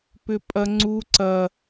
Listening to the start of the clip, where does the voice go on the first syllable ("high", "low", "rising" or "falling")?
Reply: high